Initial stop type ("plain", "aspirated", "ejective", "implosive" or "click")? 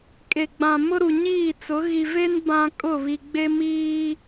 ejective